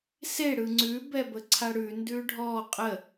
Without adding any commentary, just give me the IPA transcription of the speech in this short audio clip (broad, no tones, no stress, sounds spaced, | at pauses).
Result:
s e ɽ ɯ ŋ͡ǀ ʉ b ɛ b ə ǀʰ a ɽ ʉ n d ʉ ɖʱ ɔ qʼ ə